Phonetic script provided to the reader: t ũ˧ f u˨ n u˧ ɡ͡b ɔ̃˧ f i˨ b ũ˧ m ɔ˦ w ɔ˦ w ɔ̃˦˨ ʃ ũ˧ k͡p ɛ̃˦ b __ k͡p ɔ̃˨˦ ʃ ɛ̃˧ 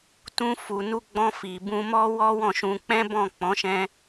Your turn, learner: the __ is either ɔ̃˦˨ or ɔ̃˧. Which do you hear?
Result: ɔ̃˦˨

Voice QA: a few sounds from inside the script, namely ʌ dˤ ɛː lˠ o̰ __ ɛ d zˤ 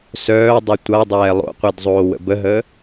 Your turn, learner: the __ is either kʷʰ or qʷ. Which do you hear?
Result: qʷ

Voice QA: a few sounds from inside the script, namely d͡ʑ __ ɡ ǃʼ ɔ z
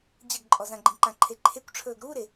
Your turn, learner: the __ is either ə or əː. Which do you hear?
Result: ə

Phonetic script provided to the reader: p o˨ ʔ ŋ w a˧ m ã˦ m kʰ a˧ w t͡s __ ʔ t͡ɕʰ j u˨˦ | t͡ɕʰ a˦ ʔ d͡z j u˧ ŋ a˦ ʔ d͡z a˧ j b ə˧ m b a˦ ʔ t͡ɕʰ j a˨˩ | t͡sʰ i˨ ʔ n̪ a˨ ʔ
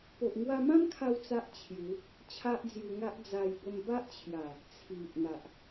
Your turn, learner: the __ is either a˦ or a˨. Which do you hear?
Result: a˦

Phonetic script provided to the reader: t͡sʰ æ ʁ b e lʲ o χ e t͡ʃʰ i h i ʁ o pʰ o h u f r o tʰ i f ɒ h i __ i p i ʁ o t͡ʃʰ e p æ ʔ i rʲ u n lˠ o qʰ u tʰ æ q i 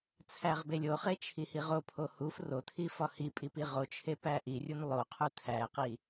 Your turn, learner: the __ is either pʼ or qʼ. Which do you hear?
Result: pʼ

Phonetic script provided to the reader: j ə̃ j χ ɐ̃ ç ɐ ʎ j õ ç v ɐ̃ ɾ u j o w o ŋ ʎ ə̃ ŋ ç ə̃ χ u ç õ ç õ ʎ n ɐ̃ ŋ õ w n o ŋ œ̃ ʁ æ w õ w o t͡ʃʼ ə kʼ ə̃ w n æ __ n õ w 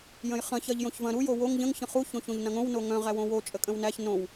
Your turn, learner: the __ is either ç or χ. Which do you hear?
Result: ç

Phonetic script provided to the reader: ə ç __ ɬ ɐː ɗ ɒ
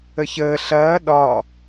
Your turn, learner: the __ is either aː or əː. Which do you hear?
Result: əː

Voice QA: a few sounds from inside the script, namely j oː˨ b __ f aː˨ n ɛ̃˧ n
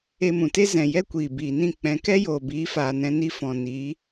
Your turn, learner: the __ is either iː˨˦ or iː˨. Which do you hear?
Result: iː˨˦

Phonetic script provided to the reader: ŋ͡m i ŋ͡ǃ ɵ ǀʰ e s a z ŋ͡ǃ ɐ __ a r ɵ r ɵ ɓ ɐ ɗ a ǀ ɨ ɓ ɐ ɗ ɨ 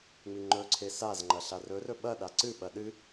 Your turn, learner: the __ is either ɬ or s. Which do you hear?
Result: ɬ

